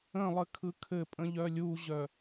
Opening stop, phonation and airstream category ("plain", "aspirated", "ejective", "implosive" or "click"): aspirated